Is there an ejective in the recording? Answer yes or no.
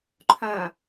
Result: no